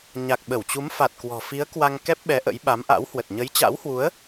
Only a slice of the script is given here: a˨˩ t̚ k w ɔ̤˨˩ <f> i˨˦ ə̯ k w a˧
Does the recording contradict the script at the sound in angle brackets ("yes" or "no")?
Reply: no